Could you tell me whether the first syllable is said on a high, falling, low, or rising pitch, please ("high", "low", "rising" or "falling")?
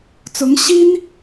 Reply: rising